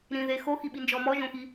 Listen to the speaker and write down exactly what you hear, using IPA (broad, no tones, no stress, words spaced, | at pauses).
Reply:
ɾĩðe xoxiɓind͡ʒɔ mɔʒõxi